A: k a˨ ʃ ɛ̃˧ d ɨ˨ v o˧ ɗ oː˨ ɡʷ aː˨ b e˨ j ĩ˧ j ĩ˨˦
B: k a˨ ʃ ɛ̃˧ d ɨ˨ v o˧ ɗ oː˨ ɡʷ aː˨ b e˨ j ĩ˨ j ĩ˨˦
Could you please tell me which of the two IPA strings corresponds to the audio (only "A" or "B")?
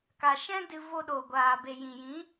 B